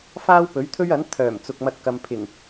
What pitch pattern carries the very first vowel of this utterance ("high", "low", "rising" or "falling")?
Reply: high